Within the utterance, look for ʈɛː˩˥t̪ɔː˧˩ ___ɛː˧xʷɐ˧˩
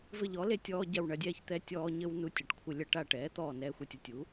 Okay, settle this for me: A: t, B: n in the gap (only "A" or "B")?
B